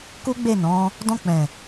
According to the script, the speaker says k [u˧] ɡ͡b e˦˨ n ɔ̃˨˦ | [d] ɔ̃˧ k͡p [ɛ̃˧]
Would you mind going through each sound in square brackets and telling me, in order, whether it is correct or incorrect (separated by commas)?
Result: incorrect, correct, incorrect